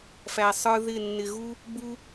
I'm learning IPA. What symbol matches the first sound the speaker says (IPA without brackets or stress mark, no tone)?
f